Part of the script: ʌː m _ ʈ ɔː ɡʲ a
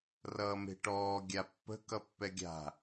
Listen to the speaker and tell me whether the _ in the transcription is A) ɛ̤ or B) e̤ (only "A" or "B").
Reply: B